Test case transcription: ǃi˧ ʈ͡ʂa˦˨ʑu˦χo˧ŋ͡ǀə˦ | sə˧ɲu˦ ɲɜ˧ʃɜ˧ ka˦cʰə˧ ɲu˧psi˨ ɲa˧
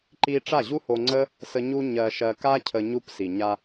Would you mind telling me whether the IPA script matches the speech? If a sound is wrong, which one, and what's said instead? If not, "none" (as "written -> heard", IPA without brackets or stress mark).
χ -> h